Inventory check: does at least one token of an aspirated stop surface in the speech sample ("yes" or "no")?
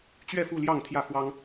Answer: yes